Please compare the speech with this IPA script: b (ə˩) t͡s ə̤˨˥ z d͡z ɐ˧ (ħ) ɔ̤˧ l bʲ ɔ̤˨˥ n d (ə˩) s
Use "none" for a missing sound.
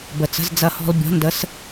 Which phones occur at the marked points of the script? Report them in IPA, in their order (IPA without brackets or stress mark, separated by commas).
ə˩, h, ə˨˥